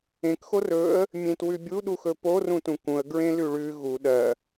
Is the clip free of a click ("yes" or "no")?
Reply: yes